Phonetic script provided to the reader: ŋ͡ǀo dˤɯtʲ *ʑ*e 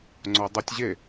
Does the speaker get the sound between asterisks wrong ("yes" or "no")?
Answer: no